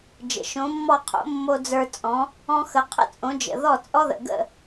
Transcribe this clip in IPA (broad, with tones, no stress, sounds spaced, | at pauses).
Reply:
d͡ʒ ə̰˩ ʃ õ˩˥ mː ɔ˥˩ qʰ o̰˩˥ mː o˧ d͡z ə˞˧ t͡sʼ ɔ̃˩˥ | ɔ̃˧ x ə˩˥ qʰ ə̰˥ t͡sʼ õ˩˥ d͡ʒ ə̰˩ ð ɔ˥˩ t͡sʼ ɔ˥ ð ə̰˩ ɡ ə̰˥˩